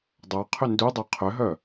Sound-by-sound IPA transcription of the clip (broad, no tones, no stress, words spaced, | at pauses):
dˤaqʰʏ ndudˤa qʰʏɦœ